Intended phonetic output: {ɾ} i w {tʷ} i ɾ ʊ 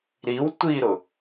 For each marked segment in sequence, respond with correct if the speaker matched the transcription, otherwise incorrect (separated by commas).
correct, correct